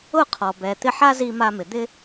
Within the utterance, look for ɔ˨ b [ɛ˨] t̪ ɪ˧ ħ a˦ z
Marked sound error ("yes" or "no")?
no